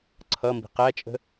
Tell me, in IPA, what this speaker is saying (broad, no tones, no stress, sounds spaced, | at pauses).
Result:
ǀʰ ʌ m b i̤ q æ t͡ʃʼ ə̤